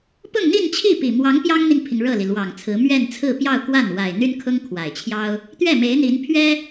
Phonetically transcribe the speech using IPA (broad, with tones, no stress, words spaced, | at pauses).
pʊ˥˧ŋn̪i˥˧nt͡ɕʰi˥˩ pi˨˩mwɑ˧˥ŋ pjɑ˥ŋn̪i˨ŋpʰi˩ŋ ɻɤ˥˩li˩lwɑ˨˩ŋt͡sʰɹ̩˧˥ mɥɛ˥˧nt͡sʰɹ̩˥˧pjɑ˥˧ʊ̯kwa˥˩n wa˨˩ɪ̯n̪y˥nkʰʊ˥ŋ kʰwa˨˩ɪ̯t͡ɕʰjɑ˥ʊ̯ | t̪ɥɛ˥˩me˧˥ɪ̯n̪i˧˥n pʰɥɛ˥